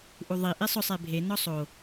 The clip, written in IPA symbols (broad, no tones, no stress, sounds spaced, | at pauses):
ʔ u ðˤ i ʔ i sˤ ʊ sˤ e bʱ e n ɔ sˤ o